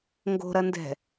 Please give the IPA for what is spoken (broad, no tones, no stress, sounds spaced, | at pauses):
ŋ ɡ o̤ ɾ ɐ n d ɛ̤